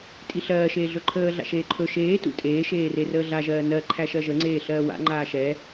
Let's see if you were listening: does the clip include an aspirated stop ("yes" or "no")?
yes